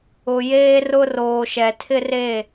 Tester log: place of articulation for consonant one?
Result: palatal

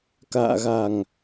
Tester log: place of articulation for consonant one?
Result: velar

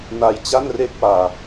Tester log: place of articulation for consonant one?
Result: alveolar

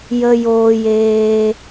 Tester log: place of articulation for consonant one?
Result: palatal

